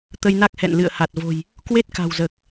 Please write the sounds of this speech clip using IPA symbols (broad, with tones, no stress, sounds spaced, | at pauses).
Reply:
t̪ ə˧ j n a˦˥ k̚ h ɛ̰˧˨ n l ɨ̰˧˨ ə̯ h a˨˩ t̚ v o̤˨˩ j | k w e˦˥ t̚ k a̤˨˩ w z əː˨˩ k̚